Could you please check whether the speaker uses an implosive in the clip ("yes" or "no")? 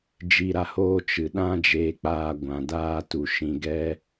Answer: yes